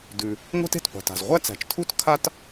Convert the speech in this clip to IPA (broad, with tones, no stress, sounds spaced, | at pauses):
d ʉ˩ | ŋʷ æ̤˥ t e̤˩ t qʷ e̤˩ t a̤˩ z ʁʷ æ˥ t͡s æ̤˩ t͡ʃ tʰ u˥ t kʰ a˥ t